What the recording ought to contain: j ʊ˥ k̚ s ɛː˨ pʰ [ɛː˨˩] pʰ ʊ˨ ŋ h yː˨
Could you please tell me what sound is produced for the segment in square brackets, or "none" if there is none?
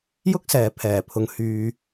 ɛː˨˩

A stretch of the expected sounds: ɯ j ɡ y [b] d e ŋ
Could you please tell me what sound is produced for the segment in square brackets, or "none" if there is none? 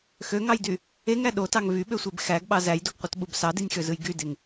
none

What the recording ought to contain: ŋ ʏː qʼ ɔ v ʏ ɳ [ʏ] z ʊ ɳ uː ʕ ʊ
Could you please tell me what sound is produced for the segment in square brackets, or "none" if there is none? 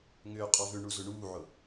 u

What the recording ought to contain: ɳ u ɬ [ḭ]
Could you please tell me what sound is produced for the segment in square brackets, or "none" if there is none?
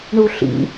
ḭ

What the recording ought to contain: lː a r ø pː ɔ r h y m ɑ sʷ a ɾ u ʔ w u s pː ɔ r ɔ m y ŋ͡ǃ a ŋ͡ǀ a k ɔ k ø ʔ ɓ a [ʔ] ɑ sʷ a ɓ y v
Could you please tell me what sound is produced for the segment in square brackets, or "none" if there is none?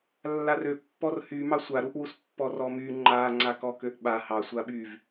h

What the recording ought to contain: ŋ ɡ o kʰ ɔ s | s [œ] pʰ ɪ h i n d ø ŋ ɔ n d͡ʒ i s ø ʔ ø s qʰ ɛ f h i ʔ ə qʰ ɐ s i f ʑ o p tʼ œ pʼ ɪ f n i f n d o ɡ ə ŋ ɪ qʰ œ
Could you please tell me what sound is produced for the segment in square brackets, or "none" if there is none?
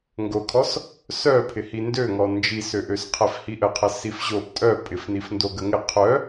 œ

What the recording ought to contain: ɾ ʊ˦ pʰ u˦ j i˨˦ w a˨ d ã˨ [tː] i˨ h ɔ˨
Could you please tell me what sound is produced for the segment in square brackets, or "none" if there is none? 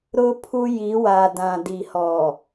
d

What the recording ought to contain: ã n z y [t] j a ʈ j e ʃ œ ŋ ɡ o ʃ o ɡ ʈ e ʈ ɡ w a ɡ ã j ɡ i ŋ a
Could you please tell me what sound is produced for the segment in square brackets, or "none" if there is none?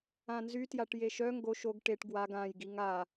t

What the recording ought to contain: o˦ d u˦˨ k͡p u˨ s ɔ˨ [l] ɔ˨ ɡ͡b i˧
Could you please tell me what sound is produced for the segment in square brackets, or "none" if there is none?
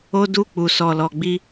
l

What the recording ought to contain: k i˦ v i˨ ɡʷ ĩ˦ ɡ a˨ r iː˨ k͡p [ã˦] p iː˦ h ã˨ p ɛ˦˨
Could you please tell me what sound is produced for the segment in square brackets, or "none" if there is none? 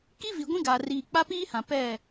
a˦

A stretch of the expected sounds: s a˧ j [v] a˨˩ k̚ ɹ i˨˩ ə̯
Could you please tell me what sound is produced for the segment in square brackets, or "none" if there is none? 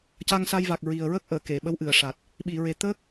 v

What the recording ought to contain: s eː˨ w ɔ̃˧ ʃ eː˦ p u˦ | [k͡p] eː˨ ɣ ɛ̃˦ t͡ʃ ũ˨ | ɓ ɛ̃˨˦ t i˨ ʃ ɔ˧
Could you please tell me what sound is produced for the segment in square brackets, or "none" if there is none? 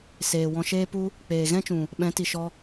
k͡p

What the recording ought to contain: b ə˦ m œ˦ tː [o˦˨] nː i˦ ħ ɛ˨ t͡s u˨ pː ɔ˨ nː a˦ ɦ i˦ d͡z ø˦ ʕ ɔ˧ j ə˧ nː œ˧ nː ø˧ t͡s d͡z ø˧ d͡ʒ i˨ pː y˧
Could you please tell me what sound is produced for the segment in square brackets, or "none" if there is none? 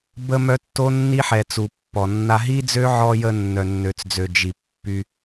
o˦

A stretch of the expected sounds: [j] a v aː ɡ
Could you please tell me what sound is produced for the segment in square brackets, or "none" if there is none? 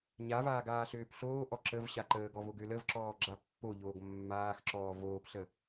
ɲ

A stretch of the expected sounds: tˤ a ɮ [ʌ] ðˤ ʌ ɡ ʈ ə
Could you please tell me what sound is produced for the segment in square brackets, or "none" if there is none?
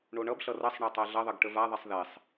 ʌ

